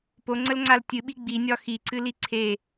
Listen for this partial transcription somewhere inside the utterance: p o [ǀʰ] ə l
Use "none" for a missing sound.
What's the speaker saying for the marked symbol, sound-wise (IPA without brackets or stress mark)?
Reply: ŋ͡ǀ